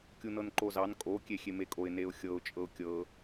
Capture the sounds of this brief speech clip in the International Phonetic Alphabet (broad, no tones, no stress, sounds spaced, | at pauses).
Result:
kʲ u n ɤ n ǃ o z ɑ n kʼ o kʲ e xʲ e m e kʼ o ɪ̯ n e ʊ̯ xʲ ɤ ʊ̯ t͡ʃʼ ɤ ʊ̯ kʲ ɤ